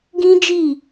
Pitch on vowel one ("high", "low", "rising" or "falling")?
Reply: high